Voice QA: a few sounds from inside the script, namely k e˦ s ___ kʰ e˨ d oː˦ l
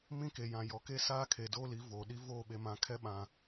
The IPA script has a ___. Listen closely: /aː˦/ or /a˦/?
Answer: aː˦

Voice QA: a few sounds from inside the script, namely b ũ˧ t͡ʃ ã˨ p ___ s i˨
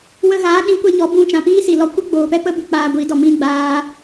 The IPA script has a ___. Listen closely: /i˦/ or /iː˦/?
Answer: iː˦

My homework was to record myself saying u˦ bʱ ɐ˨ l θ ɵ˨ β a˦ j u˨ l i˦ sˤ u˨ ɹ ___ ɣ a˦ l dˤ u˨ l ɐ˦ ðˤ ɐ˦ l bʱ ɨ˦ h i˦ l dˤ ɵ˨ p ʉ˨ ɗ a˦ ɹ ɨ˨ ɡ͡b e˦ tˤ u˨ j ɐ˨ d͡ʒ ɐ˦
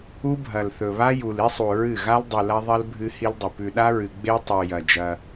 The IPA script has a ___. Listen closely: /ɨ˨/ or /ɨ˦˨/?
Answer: ɨ˦˨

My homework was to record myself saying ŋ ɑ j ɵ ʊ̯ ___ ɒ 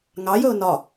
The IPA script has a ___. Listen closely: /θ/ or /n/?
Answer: n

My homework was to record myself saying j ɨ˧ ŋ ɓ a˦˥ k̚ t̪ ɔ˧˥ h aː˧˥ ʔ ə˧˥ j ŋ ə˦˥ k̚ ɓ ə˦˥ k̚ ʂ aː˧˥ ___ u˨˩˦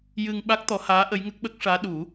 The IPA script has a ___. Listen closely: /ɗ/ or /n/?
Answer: ɗ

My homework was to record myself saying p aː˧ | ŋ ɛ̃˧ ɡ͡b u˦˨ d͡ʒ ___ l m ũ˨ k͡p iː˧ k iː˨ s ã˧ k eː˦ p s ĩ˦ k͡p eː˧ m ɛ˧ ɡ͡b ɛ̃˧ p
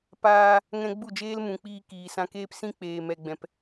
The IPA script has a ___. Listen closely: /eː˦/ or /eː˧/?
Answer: eː˦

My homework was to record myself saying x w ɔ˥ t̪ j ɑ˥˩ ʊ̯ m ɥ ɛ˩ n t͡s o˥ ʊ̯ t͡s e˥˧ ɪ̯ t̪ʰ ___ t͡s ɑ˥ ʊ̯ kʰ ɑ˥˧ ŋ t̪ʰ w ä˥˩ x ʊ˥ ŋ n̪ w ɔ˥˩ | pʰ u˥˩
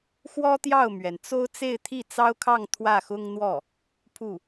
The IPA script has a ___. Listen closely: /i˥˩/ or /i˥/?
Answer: i˥˩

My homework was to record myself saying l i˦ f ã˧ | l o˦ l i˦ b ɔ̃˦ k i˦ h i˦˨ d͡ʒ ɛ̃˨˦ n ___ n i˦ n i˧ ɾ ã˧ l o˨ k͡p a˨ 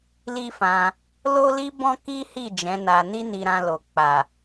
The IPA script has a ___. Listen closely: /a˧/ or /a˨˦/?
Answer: a˧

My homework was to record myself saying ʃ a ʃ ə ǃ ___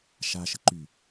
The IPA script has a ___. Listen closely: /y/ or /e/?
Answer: y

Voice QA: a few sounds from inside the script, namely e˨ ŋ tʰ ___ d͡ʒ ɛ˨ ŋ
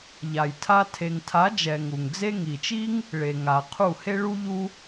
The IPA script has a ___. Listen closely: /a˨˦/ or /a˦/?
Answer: a˨˦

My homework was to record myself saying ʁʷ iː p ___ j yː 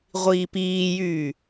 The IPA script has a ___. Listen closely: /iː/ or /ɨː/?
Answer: iː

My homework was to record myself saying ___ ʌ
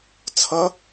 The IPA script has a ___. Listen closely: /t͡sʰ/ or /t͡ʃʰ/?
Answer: t͡sʰ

